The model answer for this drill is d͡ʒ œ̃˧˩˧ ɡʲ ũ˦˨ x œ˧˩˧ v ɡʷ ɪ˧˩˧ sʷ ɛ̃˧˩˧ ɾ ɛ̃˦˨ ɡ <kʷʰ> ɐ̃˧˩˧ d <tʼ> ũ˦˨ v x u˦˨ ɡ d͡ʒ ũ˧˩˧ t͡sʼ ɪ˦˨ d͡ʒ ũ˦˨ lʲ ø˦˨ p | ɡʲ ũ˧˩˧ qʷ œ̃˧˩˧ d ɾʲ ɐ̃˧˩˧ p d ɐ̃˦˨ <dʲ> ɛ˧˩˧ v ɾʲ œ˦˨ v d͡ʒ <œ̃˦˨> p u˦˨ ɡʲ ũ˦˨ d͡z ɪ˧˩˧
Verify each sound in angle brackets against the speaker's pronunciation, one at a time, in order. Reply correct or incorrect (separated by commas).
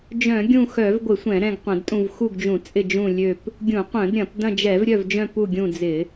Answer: incorrect, correct, incorrect, correct